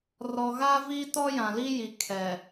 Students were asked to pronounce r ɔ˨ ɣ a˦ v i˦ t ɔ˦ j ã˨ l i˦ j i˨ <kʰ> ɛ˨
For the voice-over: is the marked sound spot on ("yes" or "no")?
yes